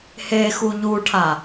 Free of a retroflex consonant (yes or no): no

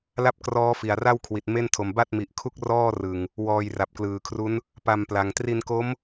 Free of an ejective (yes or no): yes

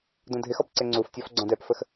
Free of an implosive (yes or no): yes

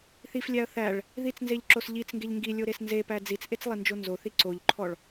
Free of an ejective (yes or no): yes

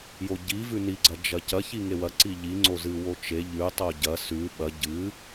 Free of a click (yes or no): no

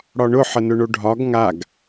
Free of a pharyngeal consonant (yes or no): no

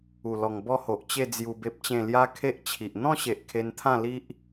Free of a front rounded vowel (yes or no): yes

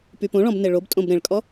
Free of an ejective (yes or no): no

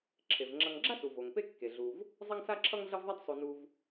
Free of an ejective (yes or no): yes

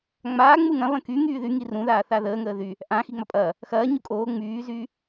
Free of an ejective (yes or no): no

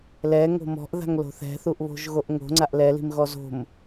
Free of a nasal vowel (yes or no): yes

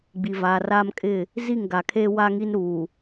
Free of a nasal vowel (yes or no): yes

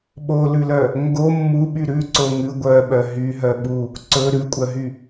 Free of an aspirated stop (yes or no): yes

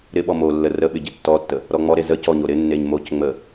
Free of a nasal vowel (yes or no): yes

